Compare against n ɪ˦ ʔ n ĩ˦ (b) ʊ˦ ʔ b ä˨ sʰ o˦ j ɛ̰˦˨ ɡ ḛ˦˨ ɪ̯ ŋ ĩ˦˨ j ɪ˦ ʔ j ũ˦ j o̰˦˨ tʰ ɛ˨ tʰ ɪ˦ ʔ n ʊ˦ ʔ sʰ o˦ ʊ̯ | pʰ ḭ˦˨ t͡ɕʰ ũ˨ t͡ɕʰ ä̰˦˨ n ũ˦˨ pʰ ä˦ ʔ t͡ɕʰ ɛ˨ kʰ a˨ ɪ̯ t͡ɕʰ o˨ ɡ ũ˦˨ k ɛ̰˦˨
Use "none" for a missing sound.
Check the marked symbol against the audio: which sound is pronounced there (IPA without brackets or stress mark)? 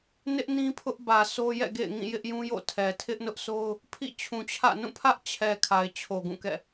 pʰ